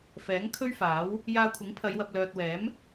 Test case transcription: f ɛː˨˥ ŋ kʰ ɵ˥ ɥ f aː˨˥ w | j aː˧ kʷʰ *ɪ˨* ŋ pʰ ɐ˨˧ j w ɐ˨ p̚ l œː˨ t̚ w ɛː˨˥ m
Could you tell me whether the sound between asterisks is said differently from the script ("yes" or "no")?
yes